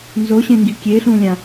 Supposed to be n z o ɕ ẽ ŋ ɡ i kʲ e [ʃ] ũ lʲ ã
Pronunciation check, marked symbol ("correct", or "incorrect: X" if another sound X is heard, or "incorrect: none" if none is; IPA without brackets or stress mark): incorrect: ɬ